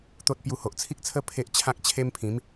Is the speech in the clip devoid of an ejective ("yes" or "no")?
yes